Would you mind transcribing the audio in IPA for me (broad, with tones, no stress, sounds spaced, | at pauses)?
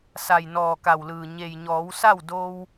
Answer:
s a˩ j n ɔː˩ k a˩ w l ɯː˩ ɲ e˩ j ɲ ɔː˩˧ w s a˥˨ w d o˧ w